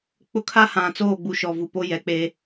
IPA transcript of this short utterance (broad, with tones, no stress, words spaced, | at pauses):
k͡pʊ˦kʰa˦hã˨ t͡soː˦˨ɡ͡bu˨ ʃɔ˨vu˨ po˦jɛ˨k͡pe˦